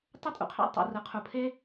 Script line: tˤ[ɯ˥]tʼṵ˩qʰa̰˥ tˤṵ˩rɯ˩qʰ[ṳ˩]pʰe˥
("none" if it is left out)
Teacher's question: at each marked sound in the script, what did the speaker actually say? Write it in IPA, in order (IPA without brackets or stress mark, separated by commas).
ɯ˥, u˩